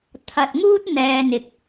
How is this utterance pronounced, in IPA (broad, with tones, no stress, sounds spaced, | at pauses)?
t̪ʰ ɐ˨ t̚ ŋ uː˥ t̚ n̪ ɛː˧ n̪ ɪ˨ k̚